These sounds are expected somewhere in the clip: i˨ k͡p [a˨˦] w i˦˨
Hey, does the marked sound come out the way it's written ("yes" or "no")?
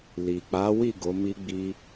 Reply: yes